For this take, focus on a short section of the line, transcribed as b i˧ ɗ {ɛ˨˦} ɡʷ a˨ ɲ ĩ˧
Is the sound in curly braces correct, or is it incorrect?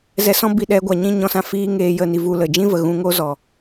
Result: correct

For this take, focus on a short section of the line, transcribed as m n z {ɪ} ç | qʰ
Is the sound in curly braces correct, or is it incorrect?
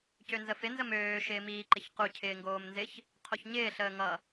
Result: correct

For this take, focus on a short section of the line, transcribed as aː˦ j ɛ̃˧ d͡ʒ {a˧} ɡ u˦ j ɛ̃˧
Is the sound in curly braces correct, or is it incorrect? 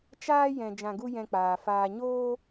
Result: incorrect: ã˧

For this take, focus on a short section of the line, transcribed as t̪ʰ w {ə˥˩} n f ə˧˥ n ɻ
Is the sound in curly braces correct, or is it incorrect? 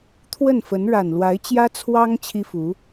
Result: correct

